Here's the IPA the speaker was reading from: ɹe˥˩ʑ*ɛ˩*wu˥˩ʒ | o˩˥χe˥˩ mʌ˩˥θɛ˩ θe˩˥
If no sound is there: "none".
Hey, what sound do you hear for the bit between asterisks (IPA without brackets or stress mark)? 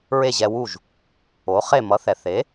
ɛ˧